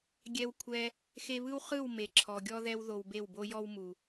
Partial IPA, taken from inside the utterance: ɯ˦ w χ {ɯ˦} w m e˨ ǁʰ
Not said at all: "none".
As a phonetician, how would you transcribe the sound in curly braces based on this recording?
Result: ɯ˦˨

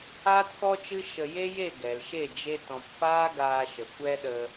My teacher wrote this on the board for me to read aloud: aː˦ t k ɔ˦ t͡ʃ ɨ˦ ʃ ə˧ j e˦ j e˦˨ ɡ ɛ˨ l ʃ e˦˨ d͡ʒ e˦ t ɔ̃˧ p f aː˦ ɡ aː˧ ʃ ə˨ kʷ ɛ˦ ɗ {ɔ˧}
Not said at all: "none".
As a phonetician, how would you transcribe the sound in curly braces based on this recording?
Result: ə˧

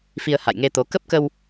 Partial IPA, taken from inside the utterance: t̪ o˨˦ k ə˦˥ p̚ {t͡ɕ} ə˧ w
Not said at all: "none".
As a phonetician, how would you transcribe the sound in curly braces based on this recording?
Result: k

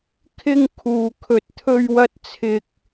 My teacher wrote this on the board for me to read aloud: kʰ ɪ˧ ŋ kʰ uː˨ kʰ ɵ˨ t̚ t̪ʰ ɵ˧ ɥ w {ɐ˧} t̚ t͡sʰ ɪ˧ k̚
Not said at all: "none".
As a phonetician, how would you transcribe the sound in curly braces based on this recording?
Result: ɐ˧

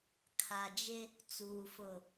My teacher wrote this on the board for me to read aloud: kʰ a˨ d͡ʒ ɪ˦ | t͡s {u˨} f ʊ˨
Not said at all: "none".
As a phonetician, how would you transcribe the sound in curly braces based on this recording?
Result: uː˨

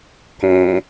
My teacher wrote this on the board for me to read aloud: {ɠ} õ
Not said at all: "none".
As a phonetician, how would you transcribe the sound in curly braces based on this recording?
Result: k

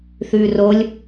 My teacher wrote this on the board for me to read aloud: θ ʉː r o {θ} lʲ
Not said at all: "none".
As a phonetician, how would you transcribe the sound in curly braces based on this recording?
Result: none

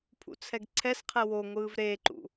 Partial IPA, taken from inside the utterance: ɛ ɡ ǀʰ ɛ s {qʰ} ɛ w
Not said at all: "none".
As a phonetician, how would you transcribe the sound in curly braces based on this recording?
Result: qʰ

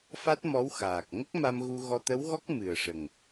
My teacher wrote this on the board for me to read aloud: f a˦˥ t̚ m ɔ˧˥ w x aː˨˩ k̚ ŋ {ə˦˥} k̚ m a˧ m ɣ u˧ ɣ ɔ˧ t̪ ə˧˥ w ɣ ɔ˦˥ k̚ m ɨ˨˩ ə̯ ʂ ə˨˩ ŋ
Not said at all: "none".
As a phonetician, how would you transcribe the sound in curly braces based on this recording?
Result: ə˦˥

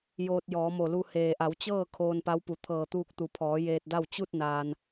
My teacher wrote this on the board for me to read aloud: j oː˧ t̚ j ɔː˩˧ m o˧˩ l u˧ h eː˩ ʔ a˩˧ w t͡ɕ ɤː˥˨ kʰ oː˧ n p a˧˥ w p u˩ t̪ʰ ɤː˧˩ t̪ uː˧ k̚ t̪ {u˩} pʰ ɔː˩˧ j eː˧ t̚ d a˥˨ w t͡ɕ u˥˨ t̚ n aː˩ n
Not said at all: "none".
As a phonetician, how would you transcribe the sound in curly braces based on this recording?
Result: u˩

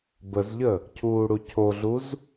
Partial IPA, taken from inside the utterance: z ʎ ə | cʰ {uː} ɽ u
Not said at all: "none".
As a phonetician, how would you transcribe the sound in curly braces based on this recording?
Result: uː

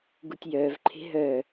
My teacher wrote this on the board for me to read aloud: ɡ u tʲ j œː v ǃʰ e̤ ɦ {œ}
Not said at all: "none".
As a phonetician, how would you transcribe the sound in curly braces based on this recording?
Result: œ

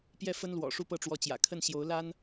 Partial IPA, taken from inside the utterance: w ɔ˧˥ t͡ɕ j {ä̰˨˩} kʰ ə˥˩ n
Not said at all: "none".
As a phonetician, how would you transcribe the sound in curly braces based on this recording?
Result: ä̰˨˩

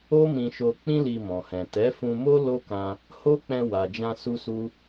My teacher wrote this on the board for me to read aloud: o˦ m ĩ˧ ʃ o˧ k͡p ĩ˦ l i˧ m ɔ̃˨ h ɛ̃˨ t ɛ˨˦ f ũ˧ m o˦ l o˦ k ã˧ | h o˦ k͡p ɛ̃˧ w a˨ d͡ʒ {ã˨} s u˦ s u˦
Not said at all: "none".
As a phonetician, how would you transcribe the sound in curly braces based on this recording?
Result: ã˧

